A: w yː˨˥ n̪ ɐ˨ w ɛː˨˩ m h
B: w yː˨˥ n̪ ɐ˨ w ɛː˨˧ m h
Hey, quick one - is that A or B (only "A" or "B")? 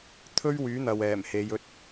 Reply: A